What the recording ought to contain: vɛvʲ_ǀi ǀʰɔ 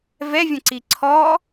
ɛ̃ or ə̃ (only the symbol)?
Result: ə̃